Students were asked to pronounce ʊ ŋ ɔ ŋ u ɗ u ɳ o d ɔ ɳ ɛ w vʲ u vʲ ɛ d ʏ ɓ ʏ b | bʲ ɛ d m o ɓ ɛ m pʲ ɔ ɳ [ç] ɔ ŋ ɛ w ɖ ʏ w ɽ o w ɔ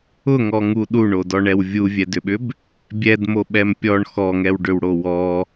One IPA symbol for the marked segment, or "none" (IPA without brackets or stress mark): x